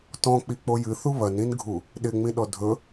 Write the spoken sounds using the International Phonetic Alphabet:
tɔ̃k͡pik͡po jɨθu βɐnĩnɡʱu | ɗɪŋ͡mĩɗɔ dʱɵ

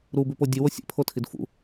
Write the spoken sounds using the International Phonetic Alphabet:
ɾubʉpo dʲɨwo sʲḛpʰotʰid fṵ

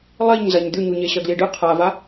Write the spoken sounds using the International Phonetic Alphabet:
lˠiɲ zɐɲd̪ʉɲu ɲeɕɐɡliɖɨ qʰava

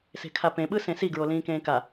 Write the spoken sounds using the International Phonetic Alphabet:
se̤kʰapẽɓɯ sẽsi ɡɹolĩːkẽːka

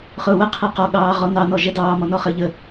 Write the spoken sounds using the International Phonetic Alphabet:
χʊːwəqʰɛ qɔɠɑː ʁɔnɑnɔ ʒɛdɑː mɔnɔχəːʎə

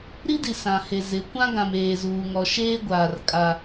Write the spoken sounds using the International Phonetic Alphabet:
ɾi˦di˨ sã˨he˨zɪ˨˦ kʷã˦ɡã˨m eː˨zuː˨ŋɔ˨ ʃeː˦ ɡʷaː˨r kʼa˦

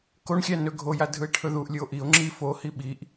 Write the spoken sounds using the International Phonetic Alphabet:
koɳxʲæ nɵɡʱoja dʱɯe̯ʈʰɵðuʔlʲɯo̯ ʔio̯ ŋ͡ǁi fohi ɓiʔ

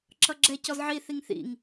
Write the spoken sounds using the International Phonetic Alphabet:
ǁʌɡ͡ǁɛ cɔzʕi θiŋθḭŋ

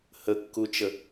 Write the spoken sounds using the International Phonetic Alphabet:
həkːut͡ʃə

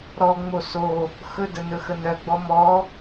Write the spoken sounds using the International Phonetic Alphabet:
ɾɔ ŋ͡moso | xɵdə nɵxənœɡ͡bɔ mɔ

